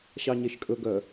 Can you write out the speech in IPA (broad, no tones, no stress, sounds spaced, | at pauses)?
ɕ ɑ ɲ e ʃ kʼ ɵ ɡ œ